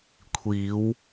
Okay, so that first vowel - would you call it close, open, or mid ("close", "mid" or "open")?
close